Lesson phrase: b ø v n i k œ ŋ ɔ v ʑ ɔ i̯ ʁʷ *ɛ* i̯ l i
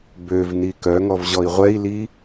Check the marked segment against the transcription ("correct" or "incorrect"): correct